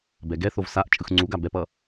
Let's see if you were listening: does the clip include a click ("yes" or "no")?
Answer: yes